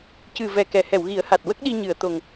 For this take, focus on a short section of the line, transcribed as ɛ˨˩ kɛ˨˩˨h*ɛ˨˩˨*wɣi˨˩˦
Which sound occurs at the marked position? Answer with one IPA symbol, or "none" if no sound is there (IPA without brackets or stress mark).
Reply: ɛ˨˩˨